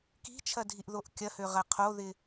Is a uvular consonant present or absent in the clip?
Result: present